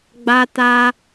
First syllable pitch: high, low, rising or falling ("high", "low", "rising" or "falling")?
high